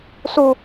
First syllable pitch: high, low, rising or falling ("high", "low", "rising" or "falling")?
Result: low